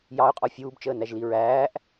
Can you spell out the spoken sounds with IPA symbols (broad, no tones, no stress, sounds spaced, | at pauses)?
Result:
j ɑ ʊ̯ qʼ ɔ fʲ uː b t͡ʃ əː n æ ʒ l i ɹ æː ʔ